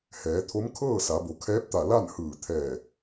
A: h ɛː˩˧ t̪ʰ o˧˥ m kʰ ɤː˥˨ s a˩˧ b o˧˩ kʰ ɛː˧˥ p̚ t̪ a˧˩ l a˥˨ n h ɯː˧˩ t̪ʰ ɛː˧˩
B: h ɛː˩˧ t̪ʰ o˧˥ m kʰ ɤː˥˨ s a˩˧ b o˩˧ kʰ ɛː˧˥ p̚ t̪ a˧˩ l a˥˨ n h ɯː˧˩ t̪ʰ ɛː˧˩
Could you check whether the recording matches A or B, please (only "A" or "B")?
B